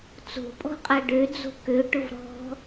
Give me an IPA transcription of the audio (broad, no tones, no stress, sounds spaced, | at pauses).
t͡s o̤ pʼ ɔ̤ qʼ a ɖ ø d͡z o̤ k ø ʈ ʊ v ɾ ɔ̤